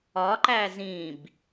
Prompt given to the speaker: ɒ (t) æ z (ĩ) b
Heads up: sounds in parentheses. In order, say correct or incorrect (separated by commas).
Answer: incorrect, correct